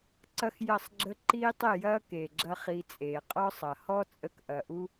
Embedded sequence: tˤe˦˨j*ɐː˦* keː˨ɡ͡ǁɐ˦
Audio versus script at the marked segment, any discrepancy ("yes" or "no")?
no